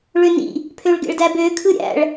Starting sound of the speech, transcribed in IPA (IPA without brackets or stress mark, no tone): ɭ